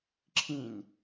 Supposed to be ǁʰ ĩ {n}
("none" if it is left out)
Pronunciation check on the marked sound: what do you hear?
n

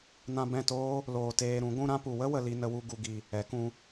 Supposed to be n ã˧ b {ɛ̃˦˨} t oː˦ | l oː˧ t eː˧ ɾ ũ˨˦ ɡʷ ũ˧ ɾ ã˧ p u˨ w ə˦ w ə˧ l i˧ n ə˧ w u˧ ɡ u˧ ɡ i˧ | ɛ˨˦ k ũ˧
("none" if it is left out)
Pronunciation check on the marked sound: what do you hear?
ɛ̃˦˨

